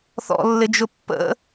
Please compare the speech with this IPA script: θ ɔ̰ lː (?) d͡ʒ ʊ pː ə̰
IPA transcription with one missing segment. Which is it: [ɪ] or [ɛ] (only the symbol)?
ɪ